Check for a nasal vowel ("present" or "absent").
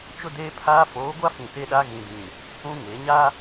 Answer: present